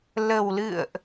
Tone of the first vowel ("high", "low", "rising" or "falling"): low